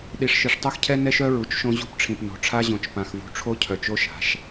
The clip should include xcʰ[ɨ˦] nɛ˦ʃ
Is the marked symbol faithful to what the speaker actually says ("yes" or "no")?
no